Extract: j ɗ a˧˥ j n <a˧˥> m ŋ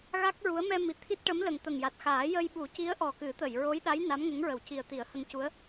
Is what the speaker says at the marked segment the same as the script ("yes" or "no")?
yes